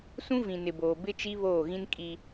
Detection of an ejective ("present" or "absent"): present